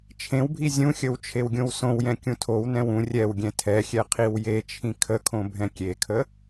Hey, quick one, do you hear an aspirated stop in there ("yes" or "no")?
yes